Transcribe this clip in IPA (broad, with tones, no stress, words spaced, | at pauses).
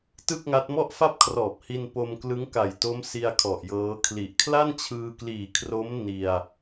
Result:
tɯ˥˩k̚ŋa˦˥t̚ mɔ˥˩ʔfa˥˩p̚kʰrɔː˨˩p̚hi˧n po˧mklɯ˦˥ŋka˨˩jto˦˥m si˧a̯ kʰɔ˨˩ʔjɤː˦˥kʰli˨˩ʔ kʰla˥˩nt͡ɕʰɯː˧kliː˨˩kʰro˦˥m ni˧a̯